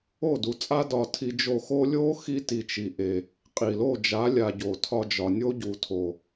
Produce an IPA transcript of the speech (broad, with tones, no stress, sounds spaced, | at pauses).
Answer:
o˦˨ d u˨ t͡sʼ a˦ d ɒ˧ tʰ i˧ d͡ʒ o˧ x o˦ lʲ o˦ x i˦ t i˧ t͡ʃ i˨ ʔ e˨ | qʼ i˨ l o˦˨ d͡ʒ a˨˦ lʲ a˨ ɟ o˨ tʰ ɒ˧ d͡ʒ ɒ˨ nʲ o˦ ɟ u˨ tʰ o˨